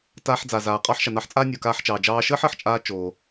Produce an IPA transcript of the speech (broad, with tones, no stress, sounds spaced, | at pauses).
t aː˧ ħ d͡z aː˩ z aː˩ qʼ ɑː˥ ħ ʃ a˩ n ɑ˧ ħ t͡sʼ aː˥ nʲ o˩ k aː˧ ħ t͡ʃ ɑː˩ d͡ʒ ɑː˧ ʃ əː˥ ħ əː˩ ħ t͡ʃʼ aː˧ t͡ʃ oː˩